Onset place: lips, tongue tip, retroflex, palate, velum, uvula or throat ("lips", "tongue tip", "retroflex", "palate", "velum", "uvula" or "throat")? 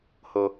throat